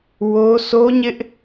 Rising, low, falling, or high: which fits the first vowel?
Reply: high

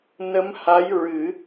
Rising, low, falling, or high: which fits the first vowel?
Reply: rising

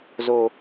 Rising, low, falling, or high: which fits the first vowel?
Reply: low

